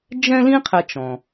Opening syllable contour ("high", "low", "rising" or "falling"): high